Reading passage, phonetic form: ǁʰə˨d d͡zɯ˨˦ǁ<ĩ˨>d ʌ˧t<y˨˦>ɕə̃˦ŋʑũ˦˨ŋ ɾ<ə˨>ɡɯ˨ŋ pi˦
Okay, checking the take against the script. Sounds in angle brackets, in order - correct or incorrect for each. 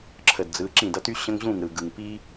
incorrect: ĩ˦˨, incorrect: y˦, incorrect: ɯ˨

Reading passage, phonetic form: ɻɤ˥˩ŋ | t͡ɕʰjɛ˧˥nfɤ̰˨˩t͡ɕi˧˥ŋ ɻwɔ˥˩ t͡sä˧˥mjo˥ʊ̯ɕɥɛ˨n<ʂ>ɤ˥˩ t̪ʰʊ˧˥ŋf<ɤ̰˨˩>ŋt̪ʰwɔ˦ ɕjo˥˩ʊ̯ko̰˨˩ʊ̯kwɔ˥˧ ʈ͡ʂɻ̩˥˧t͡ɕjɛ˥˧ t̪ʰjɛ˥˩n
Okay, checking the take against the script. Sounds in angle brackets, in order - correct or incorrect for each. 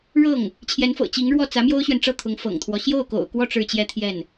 incorrect: ʈ͡ʂ, correct

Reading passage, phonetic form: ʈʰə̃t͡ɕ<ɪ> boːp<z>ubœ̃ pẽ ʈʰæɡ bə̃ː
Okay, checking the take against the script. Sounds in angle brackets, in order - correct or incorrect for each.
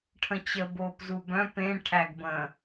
incorrect: ə, correct

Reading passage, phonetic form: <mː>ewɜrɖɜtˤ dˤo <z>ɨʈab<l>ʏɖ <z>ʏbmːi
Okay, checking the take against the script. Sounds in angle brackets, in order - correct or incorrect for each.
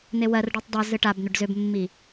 incorrect: n̪, correct, incorrect: n̪, correct

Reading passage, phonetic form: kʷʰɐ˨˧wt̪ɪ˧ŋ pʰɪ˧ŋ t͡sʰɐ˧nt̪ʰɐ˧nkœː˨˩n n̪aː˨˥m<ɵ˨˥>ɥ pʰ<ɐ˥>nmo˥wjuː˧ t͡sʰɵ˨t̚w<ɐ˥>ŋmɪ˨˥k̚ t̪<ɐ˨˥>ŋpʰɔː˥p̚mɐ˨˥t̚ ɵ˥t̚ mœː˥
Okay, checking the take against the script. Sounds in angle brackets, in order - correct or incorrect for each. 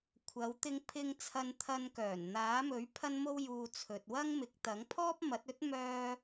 correct, correct, correct, correct

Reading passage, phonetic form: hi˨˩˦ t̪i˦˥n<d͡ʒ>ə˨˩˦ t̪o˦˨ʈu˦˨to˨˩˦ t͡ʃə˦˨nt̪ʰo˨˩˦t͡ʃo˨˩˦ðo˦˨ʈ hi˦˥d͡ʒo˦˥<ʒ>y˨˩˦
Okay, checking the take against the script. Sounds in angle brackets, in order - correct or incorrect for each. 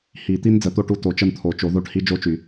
incorrect: d͡z, incorrect: t͡ʃ

